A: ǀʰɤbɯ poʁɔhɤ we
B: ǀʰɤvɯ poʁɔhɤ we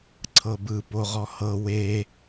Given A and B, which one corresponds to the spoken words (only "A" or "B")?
A